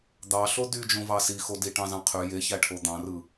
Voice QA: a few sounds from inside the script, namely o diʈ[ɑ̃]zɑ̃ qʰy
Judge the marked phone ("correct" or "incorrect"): correct